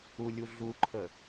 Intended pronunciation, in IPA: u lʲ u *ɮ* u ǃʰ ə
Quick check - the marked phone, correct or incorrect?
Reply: correct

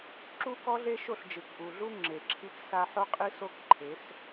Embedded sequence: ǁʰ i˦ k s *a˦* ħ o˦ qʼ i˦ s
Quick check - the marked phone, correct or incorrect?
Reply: correct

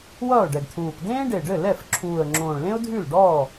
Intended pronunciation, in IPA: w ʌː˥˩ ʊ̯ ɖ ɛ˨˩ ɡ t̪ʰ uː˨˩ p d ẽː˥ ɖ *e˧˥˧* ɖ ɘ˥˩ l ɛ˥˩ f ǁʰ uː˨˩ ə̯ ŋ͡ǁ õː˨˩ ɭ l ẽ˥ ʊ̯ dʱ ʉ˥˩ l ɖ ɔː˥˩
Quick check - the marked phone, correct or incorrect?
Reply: incorrect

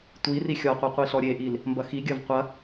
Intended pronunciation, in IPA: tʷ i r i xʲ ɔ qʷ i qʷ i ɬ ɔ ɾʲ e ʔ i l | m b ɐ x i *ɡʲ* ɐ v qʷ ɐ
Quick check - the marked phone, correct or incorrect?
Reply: correct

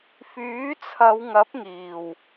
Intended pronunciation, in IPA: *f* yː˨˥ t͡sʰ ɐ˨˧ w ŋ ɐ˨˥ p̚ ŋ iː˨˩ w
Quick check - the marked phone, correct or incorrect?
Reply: correct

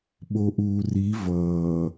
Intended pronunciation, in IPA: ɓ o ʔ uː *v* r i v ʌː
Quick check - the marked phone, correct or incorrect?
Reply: incorrect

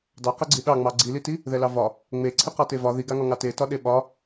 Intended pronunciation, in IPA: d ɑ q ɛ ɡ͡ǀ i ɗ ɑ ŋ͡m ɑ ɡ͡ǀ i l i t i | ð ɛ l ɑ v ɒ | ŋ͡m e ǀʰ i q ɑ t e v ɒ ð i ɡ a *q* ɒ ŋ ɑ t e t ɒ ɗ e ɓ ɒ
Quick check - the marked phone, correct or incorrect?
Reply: incorrect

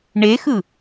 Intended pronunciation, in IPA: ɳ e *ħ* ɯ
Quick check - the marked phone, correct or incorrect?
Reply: incorrect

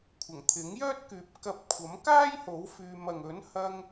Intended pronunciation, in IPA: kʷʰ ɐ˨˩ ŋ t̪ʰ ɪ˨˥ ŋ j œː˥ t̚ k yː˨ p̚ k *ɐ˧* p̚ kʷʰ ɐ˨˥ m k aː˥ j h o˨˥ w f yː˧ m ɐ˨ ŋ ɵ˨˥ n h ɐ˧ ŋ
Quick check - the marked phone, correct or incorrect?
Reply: correct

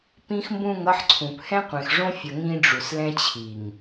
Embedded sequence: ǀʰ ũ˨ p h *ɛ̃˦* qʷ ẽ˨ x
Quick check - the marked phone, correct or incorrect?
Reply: correct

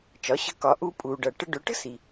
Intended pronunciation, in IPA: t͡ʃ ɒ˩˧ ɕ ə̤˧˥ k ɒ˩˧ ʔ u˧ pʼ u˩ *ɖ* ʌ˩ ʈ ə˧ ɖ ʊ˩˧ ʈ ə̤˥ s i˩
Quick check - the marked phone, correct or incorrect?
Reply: correct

